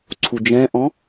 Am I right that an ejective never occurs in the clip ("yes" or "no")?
yes